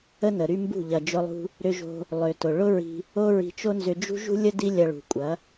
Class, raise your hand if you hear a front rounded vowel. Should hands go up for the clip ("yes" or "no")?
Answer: yes